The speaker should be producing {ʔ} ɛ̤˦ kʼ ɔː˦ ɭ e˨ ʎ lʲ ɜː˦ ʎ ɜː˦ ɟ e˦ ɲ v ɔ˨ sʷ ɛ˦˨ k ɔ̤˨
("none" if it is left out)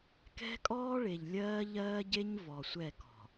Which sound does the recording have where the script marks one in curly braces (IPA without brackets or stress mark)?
k